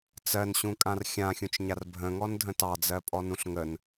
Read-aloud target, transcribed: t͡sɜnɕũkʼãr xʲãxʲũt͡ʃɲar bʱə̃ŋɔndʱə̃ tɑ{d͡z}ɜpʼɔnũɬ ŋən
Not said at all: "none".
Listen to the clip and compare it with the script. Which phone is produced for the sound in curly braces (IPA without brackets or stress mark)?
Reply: d͡z